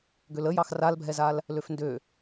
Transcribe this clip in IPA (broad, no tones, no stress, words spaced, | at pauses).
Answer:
ɡøləjɑx ralbʱɛzal | løfndø